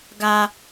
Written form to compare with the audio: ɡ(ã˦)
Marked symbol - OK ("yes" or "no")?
no